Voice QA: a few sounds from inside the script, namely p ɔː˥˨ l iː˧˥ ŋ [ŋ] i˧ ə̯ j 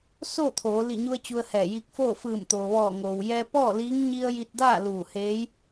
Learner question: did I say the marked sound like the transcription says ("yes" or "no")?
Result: no